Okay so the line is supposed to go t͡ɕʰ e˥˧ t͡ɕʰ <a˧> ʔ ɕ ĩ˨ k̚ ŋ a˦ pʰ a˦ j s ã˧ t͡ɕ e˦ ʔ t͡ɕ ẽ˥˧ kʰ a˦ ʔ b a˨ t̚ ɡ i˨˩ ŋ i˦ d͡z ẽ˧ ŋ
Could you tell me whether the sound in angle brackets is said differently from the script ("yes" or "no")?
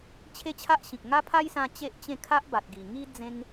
yes